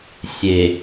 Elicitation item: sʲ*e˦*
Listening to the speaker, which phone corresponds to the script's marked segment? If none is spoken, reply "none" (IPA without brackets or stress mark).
e˨